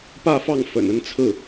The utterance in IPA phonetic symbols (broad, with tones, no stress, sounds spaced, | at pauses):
p ä˥˧ f ɑ˥˩ ŋ f ə̰˨˩ n ə˥˧ n t͡sʰ ɹ̩˥˩